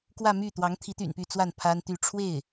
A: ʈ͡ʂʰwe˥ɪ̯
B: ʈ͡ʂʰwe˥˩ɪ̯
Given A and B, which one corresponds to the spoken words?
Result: B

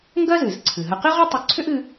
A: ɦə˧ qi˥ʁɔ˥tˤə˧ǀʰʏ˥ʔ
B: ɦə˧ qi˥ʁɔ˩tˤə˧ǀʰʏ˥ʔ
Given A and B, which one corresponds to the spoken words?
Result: A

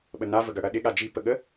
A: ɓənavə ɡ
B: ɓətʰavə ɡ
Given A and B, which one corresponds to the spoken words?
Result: A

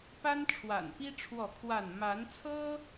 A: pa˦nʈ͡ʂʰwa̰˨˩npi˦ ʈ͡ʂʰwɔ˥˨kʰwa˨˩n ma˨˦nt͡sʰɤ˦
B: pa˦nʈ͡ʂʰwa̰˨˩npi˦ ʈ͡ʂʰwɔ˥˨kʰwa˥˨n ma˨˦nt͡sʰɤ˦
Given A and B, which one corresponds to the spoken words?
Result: B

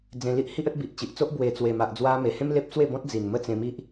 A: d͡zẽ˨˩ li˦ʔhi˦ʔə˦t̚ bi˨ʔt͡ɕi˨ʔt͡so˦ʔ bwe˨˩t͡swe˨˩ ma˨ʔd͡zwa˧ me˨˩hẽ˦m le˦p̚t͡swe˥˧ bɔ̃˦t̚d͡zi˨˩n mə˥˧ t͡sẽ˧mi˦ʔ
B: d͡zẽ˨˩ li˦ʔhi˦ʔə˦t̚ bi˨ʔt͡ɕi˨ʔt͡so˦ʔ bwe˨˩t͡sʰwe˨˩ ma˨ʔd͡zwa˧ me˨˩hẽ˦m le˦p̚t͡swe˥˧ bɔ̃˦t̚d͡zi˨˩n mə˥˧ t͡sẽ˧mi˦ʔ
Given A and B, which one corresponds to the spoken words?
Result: A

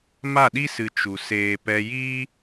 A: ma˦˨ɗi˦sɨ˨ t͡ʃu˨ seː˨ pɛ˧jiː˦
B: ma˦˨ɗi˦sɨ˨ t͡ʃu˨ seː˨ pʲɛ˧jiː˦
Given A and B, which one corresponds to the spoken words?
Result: A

